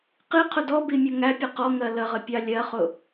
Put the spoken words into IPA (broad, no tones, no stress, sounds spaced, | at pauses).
q i qʰ ʊ d ɔ b i mʲ ʌ ŋ æ pʲ ə q ɔ ŋ ɜ l ə ʁ ə pʲ ɑ lʲ ɜ χ ʊ